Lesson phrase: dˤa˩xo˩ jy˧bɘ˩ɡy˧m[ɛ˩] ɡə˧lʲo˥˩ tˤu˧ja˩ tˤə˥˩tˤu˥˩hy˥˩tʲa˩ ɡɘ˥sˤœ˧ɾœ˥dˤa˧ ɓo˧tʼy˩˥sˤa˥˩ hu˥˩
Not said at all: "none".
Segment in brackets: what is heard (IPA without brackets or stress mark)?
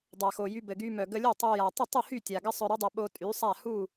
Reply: œ˩